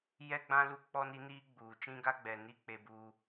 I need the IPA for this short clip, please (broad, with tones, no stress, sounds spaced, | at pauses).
j ɛ˦ ɡ͡b ã˦ l u˦ k͡p ɔ˦ n i˦ n iː˦ ɡ͡b uː˨ t͡ʃ ĩ˦ ɡ a˦ ɡ͡b ɛ˨ n i˦ k͡p e˦ b u˦